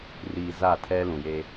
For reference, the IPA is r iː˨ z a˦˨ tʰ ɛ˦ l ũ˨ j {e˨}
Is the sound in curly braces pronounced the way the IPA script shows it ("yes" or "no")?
no